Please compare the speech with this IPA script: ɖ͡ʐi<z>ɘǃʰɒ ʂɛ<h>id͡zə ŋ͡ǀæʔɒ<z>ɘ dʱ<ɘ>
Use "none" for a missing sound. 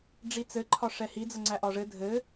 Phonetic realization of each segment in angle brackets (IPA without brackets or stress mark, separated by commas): t͡s, h, ʐ, ɘ